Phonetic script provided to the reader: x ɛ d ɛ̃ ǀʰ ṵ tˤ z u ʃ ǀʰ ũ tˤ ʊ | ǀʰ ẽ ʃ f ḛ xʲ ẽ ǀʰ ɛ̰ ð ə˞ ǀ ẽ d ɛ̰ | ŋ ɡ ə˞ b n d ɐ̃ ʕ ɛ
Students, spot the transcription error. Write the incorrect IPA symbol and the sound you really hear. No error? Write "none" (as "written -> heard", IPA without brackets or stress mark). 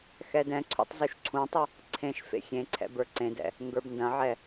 ð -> b